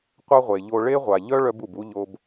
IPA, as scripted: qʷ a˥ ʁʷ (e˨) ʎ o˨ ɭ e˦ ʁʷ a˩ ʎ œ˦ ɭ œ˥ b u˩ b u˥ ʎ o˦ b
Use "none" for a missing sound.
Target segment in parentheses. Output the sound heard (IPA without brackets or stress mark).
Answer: e˩